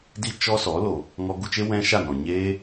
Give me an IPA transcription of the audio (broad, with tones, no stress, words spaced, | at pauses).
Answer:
di˦t͡ʃɔ˦sɔ˨˦ lo˨ | ŋɔ˧ɡu˧t͡ʃe˦ wɛ̃˦ʃa˦˨nɔ̃˨ ɲeː˦